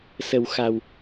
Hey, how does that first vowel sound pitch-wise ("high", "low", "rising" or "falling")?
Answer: low